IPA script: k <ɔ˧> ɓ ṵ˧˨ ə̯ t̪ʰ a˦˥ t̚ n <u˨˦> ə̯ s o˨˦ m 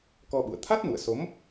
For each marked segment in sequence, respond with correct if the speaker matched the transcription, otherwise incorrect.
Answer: correct, incorrect: ṵ˧˨

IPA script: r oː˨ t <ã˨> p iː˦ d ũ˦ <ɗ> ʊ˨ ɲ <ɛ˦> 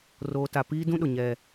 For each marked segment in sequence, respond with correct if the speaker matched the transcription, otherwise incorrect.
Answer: incorrect: a˨, correct, correct

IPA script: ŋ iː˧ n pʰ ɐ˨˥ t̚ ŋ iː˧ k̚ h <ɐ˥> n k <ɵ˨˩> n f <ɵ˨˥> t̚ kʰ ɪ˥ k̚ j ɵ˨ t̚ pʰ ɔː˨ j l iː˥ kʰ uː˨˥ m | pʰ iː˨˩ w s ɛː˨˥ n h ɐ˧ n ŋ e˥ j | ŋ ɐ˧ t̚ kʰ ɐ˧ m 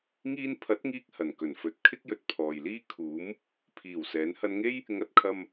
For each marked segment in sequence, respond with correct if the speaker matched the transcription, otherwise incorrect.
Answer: incorrect: ɐ˨˩, correct, correct

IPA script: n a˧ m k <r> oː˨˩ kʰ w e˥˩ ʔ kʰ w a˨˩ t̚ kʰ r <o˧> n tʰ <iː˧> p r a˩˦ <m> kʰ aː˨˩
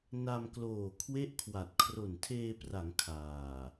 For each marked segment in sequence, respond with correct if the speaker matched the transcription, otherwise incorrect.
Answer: incorrect: l, incorrect: o˨˩, incorrect: eː˧, incorrect: ŋ

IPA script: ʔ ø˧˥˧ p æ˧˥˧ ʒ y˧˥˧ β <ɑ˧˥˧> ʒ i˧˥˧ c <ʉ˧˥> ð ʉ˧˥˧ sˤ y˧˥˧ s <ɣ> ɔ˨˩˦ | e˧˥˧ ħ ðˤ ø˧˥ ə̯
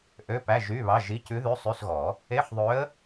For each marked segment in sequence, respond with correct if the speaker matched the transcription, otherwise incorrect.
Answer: correct, correct, correct

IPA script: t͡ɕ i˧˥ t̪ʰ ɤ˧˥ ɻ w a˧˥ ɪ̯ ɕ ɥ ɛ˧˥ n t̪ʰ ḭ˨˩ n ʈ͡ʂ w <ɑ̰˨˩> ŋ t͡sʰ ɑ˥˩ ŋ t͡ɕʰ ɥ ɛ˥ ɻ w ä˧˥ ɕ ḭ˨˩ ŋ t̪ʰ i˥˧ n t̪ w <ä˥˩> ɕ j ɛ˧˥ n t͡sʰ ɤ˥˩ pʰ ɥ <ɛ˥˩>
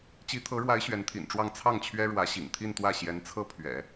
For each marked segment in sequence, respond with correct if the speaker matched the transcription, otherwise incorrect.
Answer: incorrect: ɑ˥˧, correct, incorrect: ɛ̰˨˩˦

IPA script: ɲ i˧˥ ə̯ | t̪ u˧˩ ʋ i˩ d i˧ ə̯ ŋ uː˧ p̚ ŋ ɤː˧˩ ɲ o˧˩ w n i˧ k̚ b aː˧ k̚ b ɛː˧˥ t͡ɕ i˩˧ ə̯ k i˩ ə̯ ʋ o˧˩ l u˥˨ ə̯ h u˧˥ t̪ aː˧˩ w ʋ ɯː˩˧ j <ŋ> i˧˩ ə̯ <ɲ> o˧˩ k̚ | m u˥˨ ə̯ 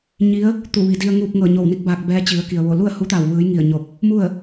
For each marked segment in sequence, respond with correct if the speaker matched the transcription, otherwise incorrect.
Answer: correct, correct

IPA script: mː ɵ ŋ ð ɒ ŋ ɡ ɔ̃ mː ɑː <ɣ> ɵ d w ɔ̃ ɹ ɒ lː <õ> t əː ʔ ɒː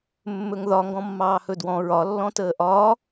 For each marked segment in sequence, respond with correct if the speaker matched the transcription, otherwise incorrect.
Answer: incorrect: h, incorrect: ɔ̃

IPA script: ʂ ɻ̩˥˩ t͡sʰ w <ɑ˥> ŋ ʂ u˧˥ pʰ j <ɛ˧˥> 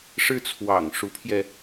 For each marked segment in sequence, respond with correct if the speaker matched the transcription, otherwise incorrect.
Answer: incorrect: ɑ̰˨˩, incorrect: ɛ˧

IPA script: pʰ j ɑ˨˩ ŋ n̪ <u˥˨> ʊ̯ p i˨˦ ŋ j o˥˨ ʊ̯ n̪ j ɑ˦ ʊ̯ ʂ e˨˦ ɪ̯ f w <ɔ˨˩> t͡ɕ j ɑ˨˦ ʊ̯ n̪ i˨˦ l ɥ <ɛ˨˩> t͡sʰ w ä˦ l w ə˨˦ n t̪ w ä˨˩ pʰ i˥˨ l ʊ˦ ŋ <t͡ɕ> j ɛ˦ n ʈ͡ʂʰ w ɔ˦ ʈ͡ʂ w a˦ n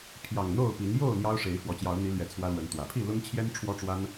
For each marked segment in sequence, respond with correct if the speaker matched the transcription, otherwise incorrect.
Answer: incorrect: o˥˨, correct, correct, incorrect: t͡ɕʰ

